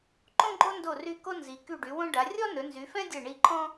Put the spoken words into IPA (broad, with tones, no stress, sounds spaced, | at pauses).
ǃ õ˥ ɡ͡ǃ o˥ n d o˦˨ r y˦˨ k o˥ n z i˨˦ k y˦˨ ɖ y˨˦ w õ˥ ɖ a˨˦ rʲ ɔ˥ n ɵ˨˦ n z y˨˦ f ɛ̃˥ dʲ ɛ˦˨ ɳ i˦˨ ǃʰ ɔ̃˥